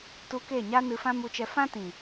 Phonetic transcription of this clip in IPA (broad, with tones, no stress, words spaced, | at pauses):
tu˧ke˦˨ɲa˦nɨ˧ fã˦mu˧t͡ʃɛ˧ fã˦tĩ˨